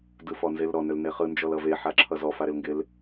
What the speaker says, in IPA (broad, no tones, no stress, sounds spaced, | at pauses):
d ɯ f ɔ n z e l ɾ ɔ n ø l n e χ ɯ n d͡ʒ ɔ l ʌ v e ħ a ǁʰ ʌ z ɔ f a ɾ ɪ l ŋ ɡ ɪ l